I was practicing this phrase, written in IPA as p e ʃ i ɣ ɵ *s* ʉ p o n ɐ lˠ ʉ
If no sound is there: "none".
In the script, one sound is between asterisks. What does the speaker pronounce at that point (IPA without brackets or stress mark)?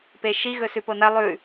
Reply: s